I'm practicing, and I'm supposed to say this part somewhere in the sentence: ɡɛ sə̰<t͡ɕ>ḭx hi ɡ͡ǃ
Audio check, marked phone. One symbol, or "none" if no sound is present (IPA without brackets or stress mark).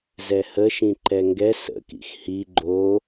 k